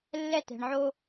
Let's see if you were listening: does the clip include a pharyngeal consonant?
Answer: yes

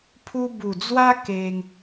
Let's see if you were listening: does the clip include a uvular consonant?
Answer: no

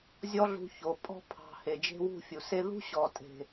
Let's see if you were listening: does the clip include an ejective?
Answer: yes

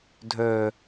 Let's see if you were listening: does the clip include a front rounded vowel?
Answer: yes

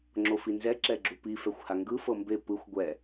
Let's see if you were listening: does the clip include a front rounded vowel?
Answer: no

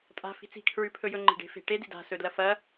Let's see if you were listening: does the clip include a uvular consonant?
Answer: no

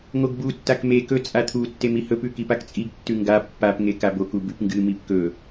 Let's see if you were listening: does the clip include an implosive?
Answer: no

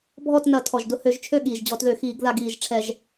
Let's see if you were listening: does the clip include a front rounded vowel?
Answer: yes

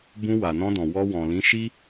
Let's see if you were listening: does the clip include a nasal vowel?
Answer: yes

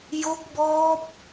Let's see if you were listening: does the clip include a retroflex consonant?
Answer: no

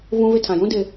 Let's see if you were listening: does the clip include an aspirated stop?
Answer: yes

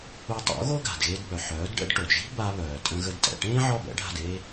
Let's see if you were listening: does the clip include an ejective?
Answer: yes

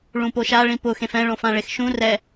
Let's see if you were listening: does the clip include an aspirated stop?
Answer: no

